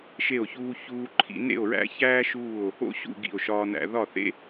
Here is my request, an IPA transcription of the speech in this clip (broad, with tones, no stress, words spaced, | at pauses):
ʃe˥˧o̯çuː˥çuː˥ǃʰḭ˥ nḛ˥˧o̯ɹæ̰˥çæː˥ ʃuː˥˧o̯ | o̰˥ɕṵ˥˧ ɡḭ˥˧o̯ʃɒː˥næ̰˥ ðɒ˥˧θḛ˥